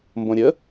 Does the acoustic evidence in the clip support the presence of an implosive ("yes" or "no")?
no